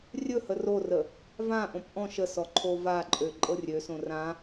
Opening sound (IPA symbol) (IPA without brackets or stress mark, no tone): rʲ